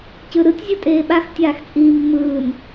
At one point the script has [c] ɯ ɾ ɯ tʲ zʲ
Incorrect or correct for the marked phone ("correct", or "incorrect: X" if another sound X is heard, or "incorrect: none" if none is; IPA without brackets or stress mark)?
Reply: correct